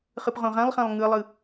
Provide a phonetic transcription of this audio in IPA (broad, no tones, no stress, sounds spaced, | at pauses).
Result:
χ ɯ p ʁ õ ʁ ã lˠ χ ã lˠ ŋ ɯ lˠ ɯ